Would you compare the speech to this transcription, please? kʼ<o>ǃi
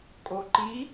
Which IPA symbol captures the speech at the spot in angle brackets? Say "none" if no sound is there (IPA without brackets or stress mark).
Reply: o